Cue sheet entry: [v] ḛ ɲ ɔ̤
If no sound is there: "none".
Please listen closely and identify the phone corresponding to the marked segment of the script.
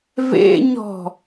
v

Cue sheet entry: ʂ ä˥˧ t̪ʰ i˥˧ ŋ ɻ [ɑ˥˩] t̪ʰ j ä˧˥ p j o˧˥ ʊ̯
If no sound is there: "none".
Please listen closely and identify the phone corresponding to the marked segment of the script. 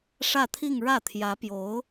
ä˥˩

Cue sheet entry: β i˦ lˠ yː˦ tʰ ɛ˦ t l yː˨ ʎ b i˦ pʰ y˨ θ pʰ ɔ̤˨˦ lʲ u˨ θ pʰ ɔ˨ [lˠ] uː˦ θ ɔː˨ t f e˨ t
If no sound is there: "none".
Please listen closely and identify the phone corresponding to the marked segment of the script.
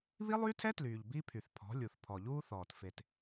ʎ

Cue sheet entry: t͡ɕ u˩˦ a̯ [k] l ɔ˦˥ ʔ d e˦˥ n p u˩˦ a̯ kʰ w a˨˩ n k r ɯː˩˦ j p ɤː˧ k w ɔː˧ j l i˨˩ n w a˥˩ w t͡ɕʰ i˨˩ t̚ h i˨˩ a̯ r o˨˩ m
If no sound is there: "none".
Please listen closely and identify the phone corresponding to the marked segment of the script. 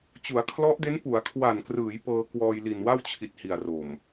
kʰ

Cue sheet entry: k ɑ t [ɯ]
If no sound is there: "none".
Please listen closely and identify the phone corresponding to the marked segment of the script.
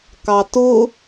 ʊ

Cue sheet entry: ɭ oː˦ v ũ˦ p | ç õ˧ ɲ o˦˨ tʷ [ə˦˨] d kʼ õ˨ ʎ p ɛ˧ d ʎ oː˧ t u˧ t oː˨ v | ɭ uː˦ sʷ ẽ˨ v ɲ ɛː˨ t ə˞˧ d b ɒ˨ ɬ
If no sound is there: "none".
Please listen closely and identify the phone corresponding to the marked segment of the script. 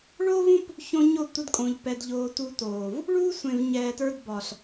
ə˧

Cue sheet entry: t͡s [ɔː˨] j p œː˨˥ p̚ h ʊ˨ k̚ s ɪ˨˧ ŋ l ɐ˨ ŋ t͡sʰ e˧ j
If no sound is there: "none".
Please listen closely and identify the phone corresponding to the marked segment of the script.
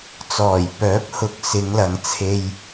ɔː˨˩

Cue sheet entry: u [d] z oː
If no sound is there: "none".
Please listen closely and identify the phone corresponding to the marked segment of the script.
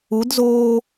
d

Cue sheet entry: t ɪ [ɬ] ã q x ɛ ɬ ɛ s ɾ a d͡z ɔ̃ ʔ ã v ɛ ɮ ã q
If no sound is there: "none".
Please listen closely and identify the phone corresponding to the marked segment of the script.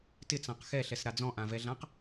t͡s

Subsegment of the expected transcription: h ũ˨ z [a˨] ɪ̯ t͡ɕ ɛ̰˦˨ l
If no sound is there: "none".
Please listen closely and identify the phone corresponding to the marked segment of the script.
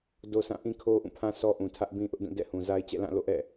a˦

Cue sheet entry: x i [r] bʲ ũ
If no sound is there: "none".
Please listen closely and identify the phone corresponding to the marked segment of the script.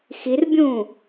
r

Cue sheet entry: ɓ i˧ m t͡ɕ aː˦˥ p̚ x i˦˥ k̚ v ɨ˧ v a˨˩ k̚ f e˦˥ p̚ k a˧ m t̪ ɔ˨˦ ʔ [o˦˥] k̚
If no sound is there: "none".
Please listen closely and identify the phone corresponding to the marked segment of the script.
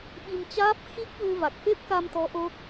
o˦˥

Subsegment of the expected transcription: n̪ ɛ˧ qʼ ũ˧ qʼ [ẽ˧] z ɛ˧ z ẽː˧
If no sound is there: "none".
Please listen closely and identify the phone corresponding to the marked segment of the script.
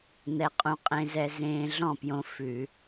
ẽ˧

